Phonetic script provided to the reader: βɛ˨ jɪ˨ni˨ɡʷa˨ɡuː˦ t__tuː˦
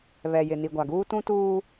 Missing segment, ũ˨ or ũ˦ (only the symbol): ũ˦